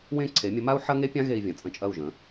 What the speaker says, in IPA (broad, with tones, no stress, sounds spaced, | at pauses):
w ẽ˥˩ ǀʰ e˩˥ mʲ ə˩˥ m a˥ u̯ ħ ɐ˥ ŋ e˥ pʲ ã˥ ɣ e˧ i̯ vʲ ɐ̃˩ t͡sʼ ə̃˥˩ t͡ʃʼ ɐ˥˩ u̯ ʒ ə̃˩˥